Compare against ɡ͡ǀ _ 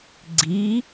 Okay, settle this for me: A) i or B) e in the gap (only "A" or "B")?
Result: A